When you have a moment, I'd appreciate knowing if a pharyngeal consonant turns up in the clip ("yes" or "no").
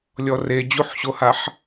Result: yes